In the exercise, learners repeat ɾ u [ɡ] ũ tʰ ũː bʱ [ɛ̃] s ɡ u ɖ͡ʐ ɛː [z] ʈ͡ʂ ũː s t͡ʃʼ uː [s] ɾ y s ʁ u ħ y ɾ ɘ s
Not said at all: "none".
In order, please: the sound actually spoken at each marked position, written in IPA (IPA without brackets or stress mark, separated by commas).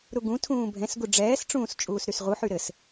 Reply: ɡ, ɛ̃, s, s